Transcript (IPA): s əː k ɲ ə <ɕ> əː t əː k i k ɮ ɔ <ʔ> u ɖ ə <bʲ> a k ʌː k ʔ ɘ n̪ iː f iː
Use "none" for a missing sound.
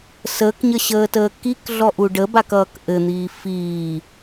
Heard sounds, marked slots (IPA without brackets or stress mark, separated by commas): ɕ, ʔ, b